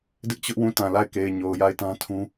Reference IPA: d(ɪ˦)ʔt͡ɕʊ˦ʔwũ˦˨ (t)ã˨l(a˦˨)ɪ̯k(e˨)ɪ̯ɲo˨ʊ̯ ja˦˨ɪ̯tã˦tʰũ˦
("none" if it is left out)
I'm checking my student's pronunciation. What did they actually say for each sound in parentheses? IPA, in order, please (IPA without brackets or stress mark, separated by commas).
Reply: ɪ˦, t, a˦˨, e˨